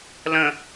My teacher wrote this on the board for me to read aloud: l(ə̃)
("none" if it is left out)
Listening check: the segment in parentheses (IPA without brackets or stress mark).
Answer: ə̃